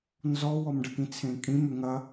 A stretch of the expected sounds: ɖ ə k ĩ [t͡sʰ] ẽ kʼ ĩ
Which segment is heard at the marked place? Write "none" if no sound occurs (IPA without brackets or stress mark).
t͡sʰ